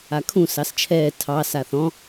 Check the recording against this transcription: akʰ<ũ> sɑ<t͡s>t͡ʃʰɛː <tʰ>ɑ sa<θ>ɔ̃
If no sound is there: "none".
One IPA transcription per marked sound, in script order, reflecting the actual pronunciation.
ũ, s, tʰ, θ

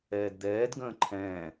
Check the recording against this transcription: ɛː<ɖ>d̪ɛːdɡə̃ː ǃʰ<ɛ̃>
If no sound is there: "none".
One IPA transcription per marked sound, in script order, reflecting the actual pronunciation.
d, ɛ̃ː

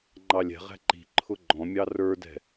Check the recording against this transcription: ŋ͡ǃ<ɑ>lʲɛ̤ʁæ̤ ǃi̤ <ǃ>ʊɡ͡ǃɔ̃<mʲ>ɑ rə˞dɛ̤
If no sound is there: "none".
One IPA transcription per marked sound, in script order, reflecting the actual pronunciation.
ɑ, ǃʰ, mʲ

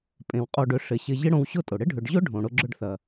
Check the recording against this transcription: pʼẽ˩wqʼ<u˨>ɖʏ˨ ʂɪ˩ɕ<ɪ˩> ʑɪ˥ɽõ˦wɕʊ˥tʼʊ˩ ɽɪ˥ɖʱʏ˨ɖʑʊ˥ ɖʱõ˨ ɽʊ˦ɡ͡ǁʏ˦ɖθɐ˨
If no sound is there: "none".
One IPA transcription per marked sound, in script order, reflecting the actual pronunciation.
o˨, ɪ˨

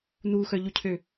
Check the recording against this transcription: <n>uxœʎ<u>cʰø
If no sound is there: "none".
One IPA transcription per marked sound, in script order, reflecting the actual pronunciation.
n, u

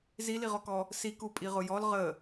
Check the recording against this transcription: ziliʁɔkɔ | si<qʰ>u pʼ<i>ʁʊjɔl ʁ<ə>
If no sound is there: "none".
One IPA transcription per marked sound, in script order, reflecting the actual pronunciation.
k, i, ə

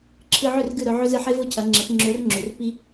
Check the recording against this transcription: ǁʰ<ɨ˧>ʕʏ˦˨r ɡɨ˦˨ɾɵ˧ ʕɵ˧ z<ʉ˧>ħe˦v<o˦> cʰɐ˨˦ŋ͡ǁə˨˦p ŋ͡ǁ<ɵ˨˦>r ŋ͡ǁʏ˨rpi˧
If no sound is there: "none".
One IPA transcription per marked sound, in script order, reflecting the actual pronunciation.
ɨ˧, ɨ˧, o˦, ɵ˨˦

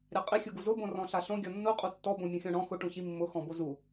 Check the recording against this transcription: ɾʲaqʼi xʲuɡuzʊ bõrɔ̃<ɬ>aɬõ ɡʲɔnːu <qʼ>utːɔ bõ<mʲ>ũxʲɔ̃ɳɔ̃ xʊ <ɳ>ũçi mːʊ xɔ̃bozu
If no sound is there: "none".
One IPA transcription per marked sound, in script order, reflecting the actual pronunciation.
ɬ, qʼ, mʲ, ʈ

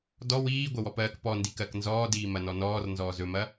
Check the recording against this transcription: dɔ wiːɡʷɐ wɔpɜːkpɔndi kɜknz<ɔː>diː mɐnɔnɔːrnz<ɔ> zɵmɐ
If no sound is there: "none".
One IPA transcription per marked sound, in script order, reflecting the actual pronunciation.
ɔː, ɔː

